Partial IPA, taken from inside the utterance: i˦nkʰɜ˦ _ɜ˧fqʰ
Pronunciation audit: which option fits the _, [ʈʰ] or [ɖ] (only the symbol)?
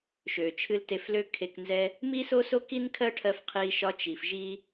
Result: ʈʰ